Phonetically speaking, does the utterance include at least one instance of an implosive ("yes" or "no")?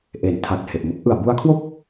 no